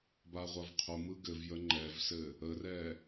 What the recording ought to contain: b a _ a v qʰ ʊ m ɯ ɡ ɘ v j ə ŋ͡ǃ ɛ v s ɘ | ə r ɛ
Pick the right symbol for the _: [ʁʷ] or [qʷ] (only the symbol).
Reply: ʁʷ